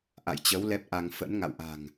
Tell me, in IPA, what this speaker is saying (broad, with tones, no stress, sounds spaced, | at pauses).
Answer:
ʔ a̰˧˨ j t͡ɕ ə˨˦ w l ɛ˦˥ p̚ ʔ a˧ ŋ f ə̰˧˥ n ŋ a̰˧˨ w ʔ a̤˨˩ ŋ